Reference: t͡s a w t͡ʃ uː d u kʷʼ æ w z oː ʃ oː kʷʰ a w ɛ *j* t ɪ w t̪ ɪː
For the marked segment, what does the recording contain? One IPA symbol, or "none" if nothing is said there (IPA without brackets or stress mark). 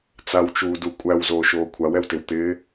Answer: w